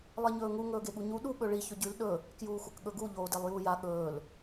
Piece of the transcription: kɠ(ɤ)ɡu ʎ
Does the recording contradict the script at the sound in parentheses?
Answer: yes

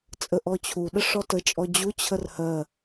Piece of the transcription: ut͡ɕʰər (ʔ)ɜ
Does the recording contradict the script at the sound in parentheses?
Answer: yes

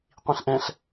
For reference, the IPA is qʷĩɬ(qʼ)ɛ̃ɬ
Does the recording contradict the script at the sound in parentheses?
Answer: yes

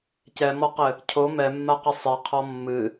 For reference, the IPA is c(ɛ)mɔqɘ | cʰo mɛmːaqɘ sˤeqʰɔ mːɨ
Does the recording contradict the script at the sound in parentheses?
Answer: no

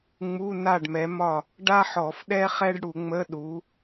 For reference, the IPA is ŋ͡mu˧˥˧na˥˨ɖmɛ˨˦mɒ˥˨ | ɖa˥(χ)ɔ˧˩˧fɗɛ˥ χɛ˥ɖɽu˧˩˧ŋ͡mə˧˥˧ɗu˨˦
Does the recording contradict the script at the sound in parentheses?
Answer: yes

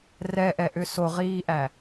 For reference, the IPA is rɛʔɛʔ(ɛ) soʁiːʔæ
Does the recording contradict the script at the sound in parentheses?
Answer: yes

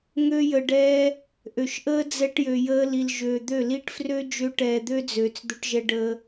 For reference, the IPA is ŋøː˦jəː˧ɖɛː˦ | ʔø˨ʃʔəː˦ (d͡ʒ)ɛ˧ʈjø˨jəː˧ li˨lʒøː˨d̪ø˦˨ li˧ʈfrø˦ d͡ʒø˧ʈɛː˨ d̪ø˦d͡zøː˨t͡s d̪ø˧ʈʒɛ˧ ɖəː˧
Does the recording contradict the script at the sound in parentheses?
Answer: yes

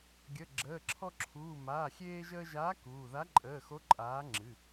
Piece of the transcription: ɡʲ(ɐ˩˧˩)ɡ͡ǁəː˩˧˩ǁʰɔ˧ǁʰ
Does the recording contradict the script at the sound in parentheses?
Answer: yes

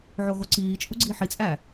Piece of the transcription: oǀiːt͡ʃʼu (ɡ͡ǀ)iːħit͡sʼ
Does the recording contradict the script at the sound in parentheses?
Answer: no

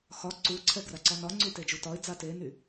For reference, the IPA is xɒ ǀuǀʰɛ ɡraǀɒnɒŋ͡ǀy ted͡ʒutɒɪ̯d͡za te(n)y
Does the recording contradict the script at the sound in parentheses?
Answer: no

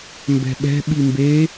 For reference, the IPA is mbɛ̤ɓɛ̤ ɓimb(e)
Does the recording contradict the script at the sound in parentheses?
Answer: no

